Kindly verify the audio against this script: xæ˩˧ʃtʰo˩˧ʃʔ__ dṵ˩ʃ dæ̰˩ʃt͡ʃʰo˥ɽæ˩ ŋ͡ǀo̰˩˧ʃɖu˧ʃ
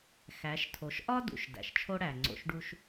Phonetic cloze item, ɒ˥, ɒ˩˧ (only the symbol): ɒ˥